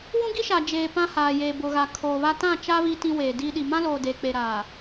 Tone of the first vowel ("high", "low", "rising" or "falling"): high